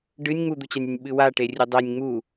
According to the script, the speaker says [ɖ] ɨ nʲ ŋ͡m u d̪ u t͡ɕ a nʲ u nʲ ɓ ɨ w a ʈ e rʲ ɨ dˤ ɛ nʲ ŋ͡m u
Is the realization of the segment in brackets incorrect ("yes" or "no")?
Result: no